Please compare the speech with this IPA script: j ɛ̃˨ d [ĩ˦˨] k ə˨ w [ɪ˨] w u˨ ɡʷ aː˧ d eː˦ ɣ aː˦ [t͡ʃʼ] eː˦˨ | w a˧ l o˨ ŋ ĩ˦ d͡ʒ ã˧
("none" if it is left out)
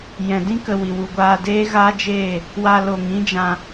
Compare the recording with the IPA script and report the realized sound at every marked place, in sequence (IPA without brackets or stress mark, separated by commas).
ĩ˦, i˨, d͡ʒ